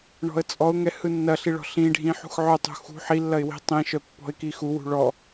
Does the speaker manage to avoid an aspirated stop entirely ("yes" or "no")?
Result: yes